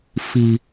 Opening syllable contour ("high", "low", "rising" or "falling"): low